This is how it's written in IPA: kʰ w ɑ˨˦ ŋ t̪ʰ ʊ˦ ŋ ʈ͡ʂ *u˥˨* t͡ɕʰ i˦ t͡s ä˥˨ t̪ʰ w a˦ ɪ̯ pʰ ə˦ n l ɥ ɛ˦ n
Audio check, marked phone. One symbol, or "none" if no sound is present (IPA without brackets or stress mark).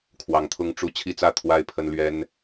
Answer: u˥˨